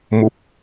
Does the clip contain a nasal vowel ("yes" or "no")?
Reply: no